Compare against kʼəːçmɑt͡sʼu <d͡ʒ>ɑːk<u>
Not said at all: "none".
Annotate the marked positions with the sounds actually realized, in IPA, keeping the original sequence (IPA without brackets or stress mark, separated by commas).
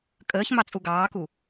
ɡ, u